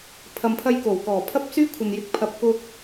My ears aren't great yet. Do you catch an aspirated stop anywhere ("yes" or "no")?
yes